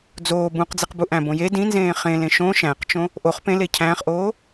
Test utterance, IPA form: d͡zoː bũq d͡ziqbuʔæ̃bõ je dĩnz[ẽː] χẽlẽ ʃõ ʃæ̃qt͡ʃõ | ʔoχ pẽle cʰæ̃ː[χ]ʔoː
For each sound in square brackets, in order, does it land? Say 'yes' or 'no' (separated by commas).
yes, yes